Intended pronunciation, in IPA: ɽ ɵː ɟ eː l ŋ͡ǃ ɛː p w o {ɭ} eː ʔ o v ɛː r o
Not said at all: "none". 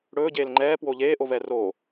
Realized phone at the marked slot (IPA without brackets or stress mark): ʎ